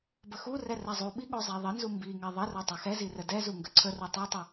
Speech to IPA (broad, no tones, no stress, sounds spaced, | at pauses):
b ə x u r ɛ r ɛ zˤ u ɓ i ɠ o zˤ ɛ ðˤ ə n z u m b i ŋ ɛ ðˤ ə r o tˤ ɛ x ɛ z i r ə d ɛ z u ŋ ɡ ə ǀʰ ə r u tˤ u tˤ ə